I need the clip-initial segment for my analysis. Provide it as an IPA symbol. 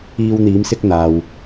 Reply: iː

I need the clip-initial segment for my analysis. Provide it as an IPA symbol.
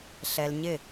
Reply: ɬ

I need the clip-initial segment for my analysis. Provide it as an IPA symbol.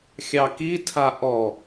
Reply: xʲ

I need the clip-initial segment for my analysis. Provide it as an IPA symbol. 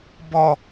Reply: b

